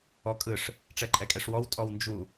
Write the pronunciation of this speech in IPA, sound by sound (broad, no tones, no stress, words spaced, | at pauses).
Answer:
ɔkʼɯʂ | ʈ͡ʂɛǃʼɛkʼɛʂwɔw tʼɔwnd͡ʒu